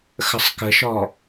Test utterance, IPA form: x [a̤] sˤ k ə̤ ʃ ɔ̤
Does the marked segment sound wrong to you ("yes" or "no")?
yes